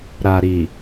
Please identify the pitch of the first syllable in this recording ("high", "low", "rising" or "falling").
low